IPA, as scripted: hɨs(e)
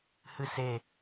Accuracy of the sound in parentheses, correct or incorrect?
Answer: correct